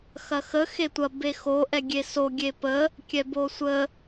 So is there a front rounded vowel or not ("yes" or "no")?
no